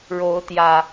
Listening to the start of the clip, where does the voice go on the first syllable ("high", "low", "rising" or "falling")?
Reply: rising